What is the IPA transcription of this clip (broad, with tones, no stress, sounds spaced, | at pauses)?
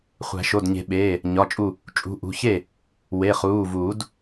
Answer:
χʷ æ̤˨˩˦ ʃ o˩˧˩ d ɲ e̤˨˩˦ ɓ eː˩˧˩ | ɲ ɒ˩˧˩ t͡ʃʼ u˧˩ | t͡ʃʼ ṳ˩˧˩ ʔ ṳ˩˧˩ ç e˥˩ | w e˩˧˩ χ uː˩˧˩ v uː˨˩˦ d